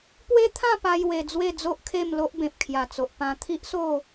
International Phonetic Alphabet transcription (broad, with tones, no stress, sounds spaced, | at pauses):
p w e˦ t̪ʰ ã˥˧ p a˦ j w e˧ d͡z w e˥˧ d͡z o˦ ʔ kʰ e˥˧ m l o˦ ʔ b ẽ˨ p̚ kʰ j a˨˩ t͡s o˨ ʔ p ã˧ t̪ʰ i˦ ʔ s o˥˧